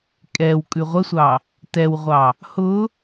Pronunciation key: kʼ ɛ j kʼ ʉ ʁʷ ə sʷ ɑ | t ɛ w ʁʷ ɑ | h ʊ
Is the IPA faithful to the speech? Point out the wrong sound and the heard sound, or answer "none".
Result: j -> w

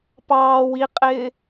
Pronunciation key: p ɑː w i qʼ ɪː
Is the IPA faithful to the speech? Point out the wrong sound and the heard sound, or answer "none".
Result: none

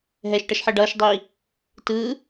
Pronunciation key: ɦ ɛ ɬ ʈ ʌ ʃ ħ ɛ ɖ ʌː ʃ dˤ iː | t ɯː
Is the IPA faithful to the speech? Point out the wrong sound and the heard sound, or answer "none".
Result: ɬ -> ʃ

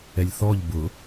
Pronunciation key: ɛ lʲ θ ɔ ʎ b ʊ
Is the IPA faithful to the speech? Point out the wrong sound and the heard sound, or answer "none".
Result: none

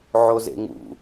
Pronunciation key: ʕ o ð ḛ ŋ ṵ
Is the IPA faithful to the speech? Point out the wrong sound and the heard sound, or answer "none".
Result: ð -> z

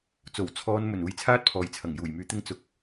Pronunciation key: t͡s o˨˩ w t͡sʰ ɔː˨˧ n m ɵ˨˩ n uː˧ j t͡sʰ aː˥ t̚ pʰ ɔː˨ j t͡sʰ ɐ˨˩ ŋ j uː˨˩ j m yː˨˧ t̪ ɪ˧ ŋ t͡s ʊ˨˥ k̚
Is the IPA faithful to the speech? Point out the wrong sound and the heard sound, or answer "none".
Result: none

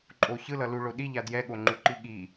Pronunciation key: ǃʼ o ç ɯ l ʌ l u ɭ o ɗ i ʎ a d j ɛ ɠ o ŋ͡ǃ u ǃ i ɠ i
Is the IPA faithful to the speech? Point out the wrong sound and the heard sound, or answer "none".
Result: none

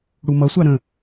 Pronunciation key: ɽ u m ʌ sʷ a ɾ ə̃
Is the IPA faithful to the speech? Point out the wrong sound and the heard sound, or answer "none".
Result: none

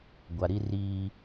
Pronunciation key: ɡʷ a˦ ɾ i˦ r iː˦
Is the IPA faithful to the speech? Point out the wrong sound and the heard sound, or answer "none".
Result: a˦ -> a˨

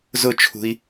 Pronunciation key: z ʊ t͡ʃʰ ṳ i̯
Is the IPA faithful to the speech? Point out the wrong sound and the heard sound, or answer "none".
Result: none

